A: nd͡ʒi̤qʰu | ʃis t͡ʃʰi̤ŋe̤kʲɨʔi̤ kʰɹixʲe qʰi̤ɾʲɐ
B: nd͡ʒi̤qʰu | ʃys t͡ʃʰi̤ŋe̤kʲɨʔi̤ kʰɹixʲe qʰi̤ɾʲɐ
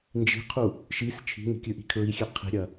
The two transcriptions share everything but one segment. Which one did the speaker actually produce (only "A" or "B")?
A